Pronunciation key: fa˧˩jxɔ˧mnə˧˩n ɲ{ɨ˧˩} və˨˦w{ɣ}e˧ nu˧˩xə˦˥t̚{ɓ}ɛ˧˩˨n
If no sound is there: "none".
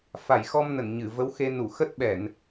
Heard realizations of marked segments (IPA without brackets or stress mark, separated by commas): ɨ˧˩, x, ɓ